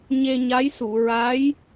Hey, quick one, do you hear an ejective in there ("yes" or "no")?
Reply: no